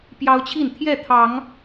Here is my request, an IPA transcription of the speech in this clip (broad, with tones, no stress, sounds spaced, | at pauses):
p j ɑ˦ ʊ̯ t͡ɕʰ i˥˨ n t̪ʰ j ɛ˥˨ t̪ʰ ɑ˨˦ ŋ